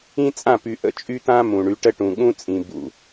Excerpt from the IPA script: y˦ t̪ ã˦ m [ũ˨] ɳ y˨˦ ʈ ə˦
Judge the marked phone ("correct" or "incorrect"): correct